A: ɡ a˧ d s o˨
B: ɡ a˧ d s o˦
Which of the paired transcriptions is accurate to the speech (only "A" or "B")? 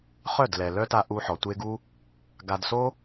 B